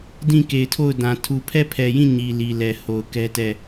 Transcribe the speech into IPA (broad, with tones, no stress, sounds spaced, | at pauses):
d ĩ˦˨ k e˨ ɪ̯ tʰ o˦˨ ʊ̯ d ã˨ tʰ u˨ pʰ ɛ˦˨ pʰ ɛ˨ j ĩ˦˨ ɲ i˨ l i˨ l ɛ˨ h o˨ ʊ̯ k ɛ˦ t ɛ˦˨